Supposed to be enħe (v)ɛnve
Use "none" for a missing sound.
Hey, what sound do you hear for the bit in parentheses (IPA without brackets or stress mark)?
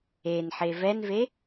v